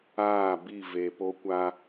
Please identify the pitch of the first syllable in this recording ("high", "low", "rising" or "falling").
falling